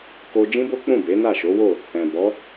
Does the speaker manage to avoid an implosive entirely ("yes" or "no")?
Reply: yes